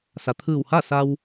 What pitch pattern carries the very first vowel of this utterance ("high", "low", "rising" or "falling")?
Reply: low